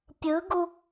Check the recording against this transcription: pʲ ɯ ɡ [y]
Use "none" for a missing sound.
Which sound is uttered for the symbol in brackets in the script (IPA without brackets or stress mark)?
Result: u